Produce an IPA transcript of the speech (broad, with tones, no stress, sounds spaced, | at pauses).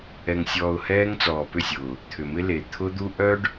ɛ˨ ŋ sʲ ɔː˨ ʊ̯ h ɛː˦ ŋ t͡s ɔː˨ p ʏ˦˨ sʲ ʊː˨ | t̪ʰ ʏ˨ m ɪ˦ l e˨ t̪ʰ ʊ˦ d̪ u˦ ʔ œ˦ ɖ